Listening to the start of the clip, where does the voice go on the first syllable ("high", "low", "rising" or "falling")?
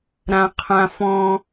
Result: low